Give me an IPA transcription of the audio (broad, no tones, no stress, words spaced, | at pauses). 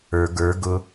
ə˞ ɡə˞ ɡʊ